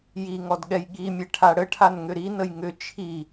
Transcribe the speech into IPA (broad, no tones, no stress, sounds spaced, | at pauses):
j i ŋ ɔ d ɠ ɛ j ɠ i mʲ ɛ ʈʰ a ɽ ə ʈʰ a n ŋ ʏ ɾ i n ə j ŋ ʏ t͡ʃʰ i